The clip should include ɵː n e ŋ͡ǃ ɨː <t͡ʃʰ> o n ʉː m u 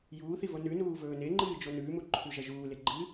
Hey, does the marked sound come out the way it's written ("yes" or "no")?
no